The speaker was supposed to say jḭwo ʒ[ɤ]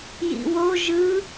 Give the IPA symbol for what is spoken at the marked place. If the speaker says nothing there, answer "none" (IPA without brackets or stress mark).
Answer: ɯ